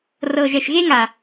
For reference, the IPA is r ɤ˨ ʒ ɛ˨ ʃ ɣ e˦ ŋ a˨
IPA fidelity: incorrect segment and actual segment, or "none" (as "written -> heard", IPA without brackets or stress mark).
none